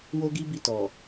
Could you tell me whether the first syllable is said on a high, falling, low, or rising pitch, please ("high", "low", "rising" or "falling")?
high